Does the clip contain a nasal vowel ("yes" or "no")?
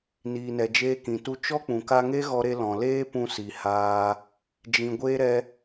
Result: yes